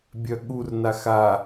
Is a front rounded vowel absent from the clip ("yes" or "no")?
no